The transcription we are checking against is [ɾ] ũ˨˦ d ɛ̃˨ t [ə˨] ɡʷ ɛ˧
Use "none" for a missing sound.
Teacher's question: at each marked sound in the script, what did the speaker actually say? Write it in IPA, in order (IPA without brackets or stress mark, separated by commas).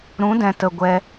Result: ɾ, ə˨